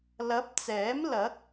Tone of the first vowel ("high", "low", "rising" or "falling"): rising